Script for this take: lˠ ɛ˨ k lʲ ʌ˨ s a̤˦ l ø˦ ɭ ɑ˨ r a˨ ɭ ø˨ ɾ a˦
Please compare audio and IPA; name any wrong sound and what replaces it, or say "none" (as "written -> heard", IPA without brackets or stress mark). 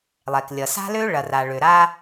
ɑ˨ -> ɐ˨